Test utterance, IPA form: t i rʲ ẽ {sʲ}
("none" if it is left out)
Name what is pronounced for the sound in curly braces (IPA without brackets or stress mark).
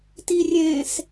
s